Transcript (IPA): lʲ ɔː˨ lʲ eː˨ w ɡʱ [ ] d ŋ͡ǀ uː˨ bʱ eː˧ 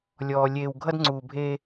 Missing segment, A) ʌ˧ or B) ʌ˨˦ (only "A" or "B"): A